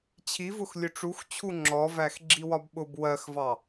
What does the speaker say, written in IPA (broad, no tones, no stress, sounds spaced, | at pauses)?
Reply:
t͡ɕʰ i v ʊ x lʲ ʊ ʈ͡ʂ u x t͡ɕʰ u ŋ͡ǁ ɔ v æ x ɡ͡ǁ i w ɒ b ɓ ʊ b w ɜ x v ɑ